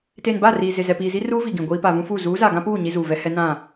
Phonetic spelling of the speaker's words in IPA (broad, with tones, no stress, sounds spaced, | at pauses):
t eː˨ n b a˦˨ r iː˨ z ɪ˨ z ɛ˨ p iː˨ z i˦ r uː˦ v i˨ ɡ ĩ˨ ɡʷ iː˦ p a˨ v ũ˦ f uː˦˨ z uː˨˦ z a˨ ɡ ã˦ p uː˦˨ ɲ i˦ z uː˨ v ɛ˦ h ɛ˦ n ã˦˨